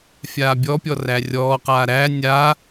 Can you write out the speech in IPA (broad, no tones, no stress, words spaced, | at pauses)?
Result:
fʲaːbʲɔpʲɔ rærʲɔːqaː ɾæ nʲaː